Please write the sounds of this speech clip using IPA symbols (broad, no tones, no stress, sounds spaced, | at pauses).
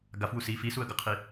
ɡ a f w u s i f i s u ə̯ ɡ ʌ qʰ i